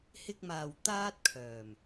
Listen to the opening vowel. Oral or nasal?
oral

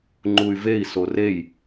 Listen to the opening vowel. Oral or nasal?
oral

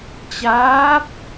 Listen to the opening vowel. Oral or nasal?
oral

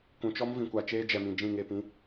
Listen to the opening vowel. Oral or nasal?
nasal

